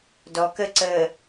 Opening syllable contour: low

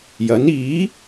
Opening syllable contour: rising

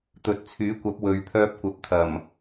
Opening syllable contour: low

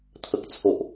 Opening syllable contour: low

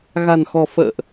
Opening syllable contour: low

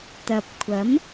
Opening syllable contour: low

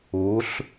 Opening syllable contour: rising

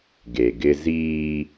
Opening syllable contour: low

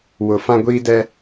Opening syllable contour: low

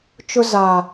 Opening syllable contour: high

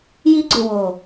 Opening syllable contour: high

